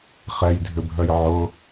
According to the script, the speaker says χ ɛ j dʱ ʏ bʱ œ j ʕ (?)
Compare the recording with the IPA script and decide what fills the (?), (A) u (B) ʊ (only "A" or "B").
B